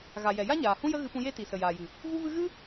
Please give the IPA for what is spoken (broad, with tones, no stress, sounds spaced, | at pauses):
ɣ a˨ j ɛ˨ j a˦ ɲ aː˨ h ũ˦ j ə˦ ɣ ɨ˧ p ũ˧ j e˦ t i˨ s ə˨ j aː˨ j ɨ˨ | v u˦ v ɨ˦ ɣ ɨ˦